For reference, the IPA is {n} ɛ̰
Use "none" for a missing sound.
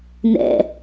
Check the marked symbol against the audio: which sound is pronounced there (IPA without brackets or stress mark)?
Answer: n